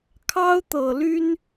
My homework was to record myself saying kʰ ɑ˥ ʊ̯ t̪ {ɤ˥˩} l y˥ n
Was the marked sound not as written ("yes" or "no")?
yes